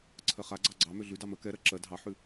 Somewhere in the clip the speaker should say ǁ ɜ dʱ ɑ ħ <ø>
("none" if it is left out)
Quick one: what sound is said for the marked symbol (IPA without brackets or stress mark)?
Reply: ʉ